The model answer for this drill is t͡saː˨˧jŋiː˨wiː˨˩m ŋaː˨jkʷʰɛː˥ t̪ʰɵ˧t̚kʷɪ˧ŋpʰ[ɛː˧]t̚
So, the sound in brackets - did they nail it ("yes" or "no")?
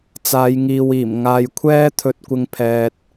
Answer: no